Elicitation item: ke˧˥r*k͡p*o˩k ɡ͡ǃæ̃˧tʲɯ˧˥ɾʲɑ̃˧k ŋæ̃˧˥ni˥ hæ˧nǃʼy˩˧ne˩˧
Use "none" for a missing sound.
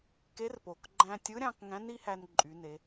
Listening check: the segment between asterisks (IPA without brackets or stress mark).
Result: p